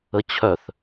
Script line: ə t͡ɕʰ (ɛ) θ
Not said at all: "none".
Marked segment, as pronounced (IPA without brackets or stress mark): œ